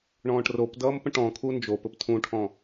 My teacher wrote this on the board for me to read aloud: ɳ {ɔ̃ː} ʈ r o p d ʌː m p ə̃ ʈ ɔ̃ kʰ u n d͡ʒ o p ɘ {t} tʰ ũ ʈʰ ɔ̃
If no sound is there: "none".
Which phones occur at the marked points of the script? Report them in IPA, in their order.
ɔ̃ː, p

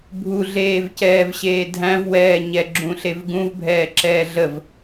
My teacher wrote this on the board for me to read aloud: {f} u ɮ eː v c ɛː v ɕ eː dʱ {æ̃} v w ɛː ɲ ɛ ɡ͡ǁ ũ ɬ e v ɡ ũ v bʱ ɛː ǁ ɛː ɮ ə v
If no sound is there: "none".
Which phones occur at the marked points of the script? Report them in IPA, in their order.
bʱ, æ̃

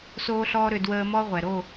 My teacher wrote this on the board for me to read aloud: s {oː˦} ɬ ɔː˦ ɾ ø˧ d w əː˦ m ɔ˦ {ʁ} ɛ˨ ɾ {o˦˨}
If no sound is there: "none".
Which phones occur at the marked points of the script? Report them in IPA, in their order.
oː˦, ʁʷ, o˦˨

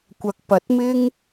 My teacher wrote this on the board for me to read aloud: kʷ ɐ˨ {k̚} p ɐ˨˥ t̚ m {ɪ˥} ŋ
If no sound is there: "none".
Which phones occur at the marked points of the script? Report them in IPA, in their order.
k̚, ɪ˥

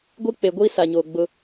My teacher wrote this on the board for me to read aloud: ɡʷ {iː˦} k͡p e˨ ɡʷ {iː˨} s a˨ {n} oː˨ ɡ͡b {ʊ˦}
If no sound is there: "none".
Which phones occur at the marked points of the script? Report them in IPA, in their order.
i˦, iː˦, ɲ, ʊ˦

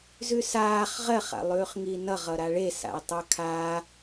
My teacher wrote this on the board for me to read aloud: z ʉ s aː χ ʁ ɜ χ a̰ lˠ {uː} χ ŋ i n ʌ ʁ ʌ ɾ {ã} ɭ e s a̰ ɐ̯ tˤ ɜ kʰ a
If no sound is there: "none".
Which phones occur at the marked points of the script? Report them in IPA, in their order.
ʉː, a

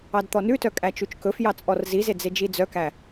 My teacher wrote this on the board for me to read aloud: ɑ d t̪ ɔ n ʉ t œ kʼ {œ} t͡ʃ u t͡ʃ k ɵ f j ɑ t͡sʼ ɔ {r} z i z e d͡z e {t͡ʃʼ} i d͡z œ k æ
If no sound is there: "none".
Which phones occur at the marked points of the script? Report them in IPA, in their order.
æ, r, d͡ʒ

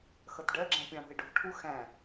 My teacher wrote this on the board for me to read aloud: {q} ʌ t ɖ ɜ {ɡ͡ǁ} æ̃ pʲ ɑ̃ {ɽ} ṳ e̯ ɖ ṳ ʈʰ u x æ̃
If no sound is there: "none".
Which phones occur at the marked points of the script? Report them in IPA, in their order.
x, ɡ͡ǁ, ɽ

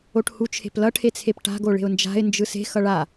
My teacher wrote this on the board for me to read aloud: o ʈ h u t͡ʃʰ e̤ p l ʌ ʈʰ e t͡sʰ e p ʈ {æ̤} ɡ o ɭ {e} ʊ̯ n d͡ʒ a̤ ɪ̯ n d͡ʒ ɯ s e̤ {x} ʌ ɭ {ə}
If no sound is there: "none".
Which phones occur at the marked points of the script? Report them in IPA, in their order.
a̤, e̤, x, a

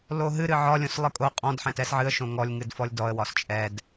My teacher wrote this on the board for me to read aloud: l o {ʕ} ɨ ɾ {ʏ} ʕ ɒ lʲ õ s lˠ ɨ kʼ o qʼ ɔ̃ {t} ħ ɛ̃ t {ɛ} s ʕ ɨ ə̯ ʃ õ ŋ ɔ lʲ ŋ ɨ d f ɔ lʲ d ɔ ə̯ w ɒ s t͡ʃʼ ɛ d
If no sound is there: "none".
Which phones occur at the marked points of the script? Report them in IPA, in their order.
ɦ, ɨ, d, ɛ

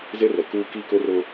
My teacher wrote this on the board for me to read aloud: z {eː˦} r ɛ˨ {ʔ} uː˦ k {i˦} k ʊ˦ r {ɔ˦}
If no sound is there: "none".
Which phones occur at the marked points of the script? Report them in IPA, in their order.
e˦, k, i˦, ʊ˦

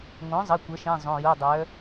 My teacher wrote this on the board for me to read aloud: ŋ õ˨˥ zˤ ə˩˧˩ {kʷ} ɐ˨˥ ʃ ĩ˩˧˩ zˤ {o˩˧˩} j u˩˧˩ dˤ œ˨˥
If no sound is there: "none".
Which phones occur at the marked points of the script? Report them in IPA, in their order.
kʷ, õ˩˧˩

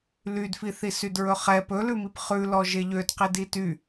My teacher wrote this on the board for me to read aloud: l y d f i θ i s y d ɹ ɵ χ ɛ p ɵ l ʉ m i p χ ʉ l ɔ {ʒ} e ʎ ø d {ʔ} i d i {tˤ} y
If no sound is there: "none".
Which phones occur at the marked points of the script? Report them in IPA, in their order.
ʒ, q, t

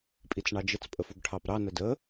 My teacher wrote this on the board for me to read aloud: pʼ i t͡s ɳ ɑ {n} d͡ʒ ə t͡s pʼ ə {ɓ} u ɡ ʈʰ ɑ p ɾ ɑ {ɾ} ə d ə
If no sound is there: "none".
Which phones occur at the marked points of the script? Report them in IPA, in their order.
none, f, n

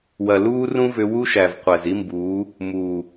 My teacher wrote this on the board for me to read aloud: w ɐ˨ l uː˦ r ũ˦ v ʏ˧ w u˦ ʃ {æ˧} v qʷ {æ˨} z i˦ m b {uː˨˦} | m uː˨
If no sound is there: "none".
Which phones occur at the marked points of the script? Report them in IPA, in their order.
æ˨, æ˨, uː˨˦

